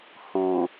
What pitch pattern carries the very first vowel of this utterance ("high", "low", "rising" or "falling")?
low